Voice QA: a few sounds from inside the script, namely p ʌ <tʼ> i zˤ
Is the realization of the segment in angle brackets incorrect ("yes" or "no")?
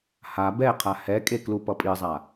yes